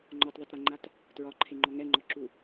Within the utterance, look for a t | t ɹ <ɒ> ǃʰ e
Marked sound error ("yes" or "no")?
no